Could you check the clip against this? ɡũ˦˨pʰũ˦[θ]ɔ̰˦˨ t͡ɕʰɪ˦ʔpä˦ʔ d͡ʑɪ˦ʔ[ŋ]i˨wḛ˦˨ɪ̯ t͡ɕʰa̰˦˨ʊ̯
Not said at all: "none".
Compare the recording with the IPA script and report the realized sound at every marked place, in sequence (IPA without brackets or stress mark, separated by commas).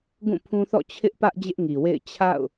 θ, ŋ